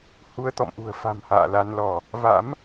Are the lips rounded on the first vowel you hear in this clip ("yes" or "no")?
yes